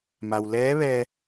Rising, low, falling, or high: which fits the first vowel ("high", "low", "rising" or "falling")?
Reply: low